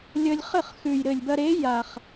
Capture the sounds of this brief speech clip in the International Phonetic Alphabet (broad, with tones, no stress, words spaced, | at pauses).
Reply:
lʲə˧lʲχɘ˥˩χxʉ˨˩j ɾɘ˨˩lʲbɐ˧ɾe˨˥ ja˨˩χ